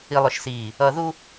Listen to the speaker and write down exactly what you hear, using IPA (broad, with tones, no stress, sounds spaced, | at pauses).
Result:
i˨ lˠ ʊ˨ ʃ s iː˨ | ʌ˨ ð u˦